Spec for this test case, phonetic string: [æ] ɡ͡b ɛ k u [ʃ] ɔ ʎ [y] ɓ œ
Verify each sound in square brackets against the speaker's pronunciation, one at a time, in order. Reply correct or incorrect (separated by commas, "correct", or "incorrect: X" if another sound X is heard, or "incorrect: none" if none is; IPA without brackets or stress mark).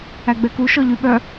correct, correct, correct